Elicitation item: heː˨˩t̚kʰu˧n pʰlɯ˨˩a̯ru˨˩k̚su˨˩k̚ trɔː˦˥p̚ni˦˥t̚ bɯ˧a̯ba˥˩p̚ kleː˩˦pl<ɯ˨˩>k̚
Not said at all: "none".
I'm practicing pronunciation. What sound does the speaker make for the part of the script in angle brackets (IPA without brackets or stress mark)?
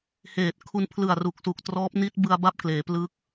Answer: ɯ˦˥